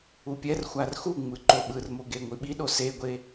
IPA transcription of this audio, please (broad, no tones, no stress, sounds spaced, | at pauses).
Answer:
u pʲ ɛ r xʷ a r x u ŋ͡m ɯ ǃ o ɓ ɯ r m o ɡ e ŋʷ i ɓ i ɗ o s e ɡʷ e